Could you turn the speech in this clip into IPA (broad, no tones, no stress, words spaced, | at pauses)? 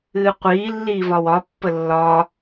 ɨːqʷiː lːiːvɒwɒ pːəlːɒː